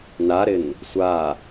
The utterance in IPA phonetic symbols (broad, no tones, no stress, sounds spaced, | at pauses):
n a ɾ ɪ n | sʷ a